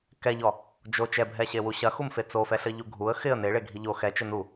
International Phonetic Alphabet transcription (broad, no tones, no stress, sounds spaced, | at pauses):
k ɛ ʎ ɔ | d͡ʒ o t͡ʃ ɛ bʱ ɛ ɕ e w u ɕ ɐ x u m f e t͡s o f ɛ ɬ ɘ ʎ u ɡʱ u ə̯ x ɪ ə̯ n e ɭ e ɡʱ i ʎ o x ɛ t͡ʃ ɘ n u